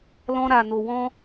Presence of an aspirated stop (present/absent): absent